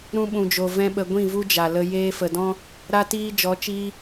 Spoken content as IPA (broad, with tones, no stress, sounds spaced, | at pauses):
ɾ ũ˧ ɓ ũ˨ d͡ʒ o˨ v ɛ̃˦ ɓ ə˧ ɡʷ ĩ˦˨ v u˦ d͡ʒ a˨ l ə˧ j eː˧ f ə˨ d ɔ̃˦ | ɾ a˧ t iː˧ d͡ʒ ɔ˨˦ t͡ʃ iː˧